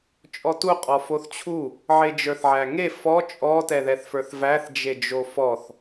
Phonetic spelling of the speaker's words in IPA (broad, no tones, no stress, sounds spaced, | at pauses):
t͡ʃʼ ɔ t u qʼ ɔ f o θ t͡ɕʰ u | ʕ e d͡ʒ ə˞ θ ʕ æ ŋ e f ɔ t͡ʃʼ ɔ t ɛ ð ɛ θ f ə˞ θ v æ θ d͡ʒ e d͡ʒ o f ɔ θ